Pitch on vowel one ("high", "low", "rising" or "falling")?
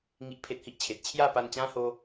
high